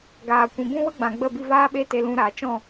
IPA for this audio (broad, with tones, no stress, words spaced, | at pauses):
ɡaː˨ kʷĩ˨bũ˦wə˦ ɡ͡bã˨ɡ͡bə˦˨bi˧ vaː˦ɓe˦ te˧lũ˧ɾaː˨ t͡ʃɔ̃˦˨